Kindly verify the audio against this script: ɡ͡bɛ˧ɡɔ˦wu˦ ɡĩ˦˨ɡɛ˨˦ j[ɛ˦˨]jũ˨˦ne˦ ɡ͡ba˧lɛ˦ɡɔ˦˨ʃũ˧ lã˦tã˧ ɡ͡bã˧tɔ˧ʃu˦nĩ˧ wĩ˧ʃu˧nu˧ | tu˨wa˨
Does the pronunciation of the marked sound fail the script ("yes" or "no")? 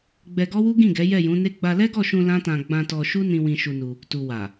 no